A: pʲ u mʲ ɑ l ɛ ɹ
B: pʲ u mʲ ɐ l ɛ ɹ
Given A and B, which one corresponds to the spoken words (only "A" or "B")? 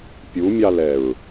A